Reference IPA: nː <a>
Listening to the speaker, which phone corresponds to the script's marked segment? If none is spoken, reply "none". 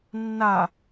a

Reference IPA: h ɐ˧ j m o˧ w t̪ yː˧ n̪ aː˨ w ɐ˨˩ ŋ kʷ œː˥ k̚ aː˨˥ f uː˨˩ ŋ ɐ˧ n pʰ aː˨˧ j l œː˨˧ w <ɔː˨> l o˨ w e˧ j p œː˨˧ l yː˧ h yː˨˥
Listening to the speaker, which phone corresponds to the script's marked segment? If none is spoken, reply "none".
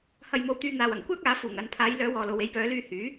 ɔː˨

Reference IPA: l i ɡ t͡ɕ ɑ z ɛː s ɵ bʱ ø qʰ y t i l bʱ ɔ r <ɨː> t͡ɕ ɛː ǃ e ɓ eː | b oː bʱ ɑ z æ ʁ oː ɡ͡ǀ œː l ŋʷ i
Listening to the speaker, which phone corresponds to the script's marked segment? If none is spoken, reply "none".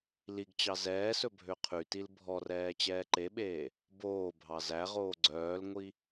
ɛː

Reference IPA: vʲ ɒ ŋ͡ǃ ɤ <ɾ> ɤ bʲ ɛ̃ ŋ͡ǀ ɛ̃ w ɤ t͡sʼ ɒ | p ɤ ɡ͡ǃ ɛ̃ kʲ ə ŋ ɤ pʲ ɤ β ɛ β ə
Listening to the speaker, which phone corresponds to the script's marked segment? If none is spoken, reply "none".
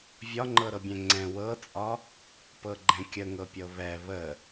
ɾ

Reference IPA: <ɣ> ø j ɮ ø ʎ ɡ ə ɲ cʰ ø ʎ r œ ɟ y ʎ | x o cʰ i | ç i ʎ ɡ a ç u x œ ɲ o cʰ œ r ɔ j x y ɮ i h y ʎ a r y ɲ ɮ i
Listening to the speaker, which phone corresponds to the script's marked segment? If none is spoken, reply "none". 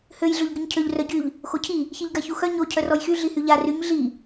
h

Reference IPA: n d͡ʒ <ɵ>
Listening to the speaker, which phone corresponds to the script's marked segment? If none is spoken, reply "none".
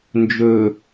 ɵ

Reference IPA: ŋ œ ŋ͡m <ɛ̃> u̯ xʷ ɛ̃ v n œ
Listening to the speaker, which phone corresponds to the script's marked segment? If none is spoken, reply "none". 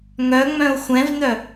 œ̃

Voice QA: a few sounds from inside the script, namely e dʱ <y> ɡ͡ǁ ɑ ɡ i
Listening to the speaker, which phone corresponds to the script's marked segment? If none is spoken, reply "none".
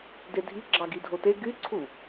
i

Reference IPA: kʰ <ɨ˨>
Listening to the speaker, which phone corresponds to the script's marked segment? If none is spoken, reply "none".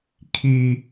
i˨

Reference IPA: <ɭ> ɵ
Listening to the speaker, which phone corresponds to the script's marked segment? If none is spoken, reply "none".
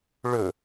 ɭ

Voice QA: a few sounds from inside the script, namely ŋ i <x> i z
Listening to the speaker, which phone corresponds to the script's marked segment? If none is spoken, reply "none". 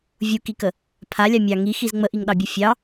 x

